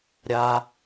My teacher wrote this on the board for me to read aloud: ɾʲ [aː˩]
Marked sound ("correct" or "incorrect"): correct